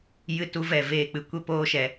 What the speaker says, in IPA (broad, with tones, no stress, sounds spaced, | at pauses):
j ɨ˦ t u˦ v ɛ˦˨ v eː˦˨ k͡p ɨ˧ kʷ e˦ p oː˦ ʃ ɛ˧